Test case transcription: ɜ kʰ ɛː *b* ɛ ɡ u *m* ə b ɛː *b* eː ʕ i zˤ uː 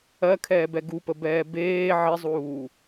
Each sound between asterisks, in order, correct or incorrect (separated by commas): correct, incorrect, correct